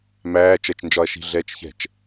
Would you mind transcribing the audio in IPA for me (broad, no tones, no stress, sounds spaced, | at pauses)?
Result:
m æː t͡ʃ ɜ t͡ʃ n d͡ʒ ɒ ɐ̯ ʃ i̤ ɮ ɛː t͡ʃ ç ɛ̤ t͡ʃ